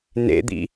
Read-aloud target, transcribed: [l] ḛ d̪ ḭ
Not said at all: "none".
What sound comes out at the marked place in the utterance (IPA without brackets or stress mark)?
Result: n